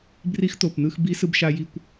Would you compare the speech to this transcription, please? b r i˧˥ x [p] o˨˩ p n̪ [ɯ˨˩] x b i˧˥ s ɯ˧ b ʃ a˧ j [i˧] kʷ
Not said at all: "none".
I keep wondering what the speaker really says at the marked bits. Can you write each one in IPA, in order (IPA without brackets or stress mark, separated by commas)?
t̪, ɯ˧, i˧